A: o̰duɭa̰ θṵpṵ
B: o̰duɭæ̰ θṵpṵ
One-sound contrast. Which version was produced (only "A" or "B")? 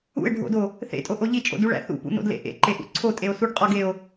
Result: B